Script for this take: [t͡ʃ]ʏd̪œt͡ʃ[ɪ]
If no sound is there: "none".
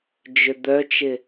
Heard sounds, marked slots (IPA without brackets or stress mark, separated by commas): d͡ʒ, ɪ